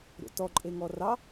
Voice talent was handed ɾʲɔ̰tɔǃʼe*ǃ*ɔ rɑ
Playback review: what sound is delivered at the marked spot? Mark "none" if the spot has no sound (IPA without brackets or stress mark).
ŋ